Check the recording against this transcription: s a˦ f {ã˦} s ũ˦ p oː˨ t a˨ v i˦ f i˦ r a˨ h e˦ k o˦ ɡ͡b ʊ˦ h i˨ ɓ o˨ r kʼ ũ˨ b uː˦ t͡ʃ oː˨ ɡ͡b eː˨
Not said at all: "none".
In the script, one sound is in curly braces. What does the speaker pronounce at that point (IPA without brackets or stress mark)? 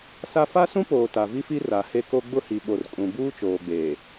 a˦